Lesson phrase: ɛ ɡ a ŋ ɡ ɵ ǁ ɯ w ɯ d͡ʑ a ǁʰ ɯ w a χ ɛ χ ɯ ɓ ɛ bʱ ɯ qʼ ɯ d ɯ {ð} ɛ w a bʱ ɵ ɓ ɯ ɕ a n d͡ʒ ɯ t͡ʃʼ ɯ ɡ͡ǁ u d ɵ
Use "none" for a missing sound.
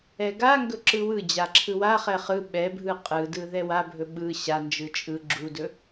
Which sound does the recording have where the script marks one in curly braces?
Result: ð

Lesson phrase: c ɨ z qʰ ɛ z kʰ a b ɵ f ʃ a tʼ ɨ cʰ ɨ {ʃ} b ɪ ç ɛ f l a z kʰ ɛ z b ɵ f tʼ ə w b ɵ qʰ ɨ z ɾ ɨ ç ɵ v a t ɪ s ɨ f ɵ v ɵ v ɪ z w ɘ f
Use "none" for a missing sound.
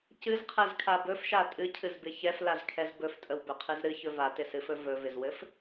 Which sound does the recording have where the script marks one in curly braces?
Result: z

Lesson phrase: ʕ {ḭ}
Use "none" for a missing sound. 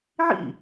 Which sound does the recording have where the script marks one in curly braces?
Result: ḭ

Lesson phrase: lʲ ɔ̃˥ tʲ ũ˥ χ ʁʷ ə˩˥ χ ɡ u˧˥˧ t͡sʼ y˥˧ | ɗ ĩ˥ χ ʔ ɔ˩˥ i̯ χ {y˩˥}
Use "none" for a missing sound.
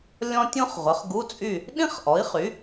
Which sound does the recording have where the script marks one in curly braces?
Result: y˩˥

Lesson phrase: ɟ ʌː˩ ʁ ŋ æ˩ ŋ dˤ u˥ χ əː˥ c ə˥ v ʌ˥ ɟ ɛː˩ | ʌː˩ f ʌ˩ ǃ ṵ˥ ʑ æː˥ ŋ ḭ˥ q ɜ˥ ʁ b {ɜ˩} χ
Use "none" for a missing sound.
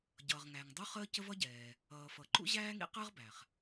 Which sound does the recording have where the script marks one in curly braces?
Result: æ˩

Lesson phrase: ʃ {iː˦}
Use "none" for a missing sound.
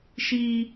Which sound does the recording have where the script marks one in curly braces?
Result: iː˦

